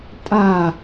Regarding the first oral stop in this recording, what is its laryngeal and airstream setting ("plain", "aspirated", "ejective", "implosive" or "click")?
ejective